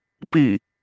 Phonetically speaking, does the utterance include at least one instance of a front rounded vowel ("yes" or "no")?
no